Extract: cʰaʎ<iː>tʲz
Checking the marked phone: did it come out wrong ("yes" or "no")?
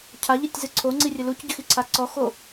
yes